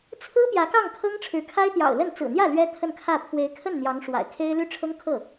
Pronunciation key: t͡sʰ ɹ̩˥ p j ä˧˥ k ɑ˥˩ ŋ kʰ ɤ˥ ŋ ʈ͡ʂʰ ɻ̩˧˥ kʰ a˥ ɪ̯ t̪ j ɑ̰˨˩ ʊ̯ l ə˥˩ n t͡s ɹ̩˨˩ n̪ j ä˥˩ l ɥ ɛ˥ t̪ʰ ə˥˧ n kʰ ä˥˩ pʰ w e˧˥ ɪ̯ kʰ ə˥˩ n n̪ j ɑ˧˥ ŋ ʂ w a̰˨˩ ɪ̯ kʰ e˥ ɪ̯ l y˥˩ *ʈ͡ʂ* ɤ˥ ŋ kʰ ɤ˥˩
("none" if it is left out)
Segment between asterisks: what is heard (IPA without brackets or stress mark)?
ʈ͡ʂʰ